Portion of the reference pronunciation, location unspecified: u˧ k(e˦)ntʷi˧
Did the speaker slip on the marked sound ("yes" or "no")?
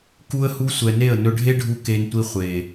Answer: yes